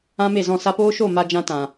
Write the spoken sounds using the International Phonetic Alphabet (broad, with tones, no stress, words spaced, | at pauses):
ã˦me˦˨zɔ̃˦˨ sa˧poː˦ʃo˦˨ ma˧d͡ʒã˧ tã˨